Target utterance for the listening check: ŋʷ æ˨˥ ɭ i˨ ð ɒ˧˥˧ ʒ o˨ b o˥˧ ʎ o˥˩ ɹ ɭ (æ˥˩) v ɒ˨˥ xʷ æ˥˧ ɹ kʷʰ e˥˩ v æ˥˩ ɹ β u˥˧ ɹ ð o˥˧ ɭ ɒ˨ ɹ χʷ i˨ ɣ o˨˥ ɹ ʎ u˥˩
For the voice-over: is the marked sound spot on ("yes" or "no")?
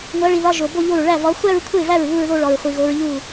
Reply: yes